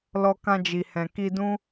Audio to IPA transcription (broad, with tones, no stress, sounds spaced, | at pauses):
l ɔ˧ k ã˧ d͡ʒ i˨ h ɛ̃˨ k i˧ d ũ˦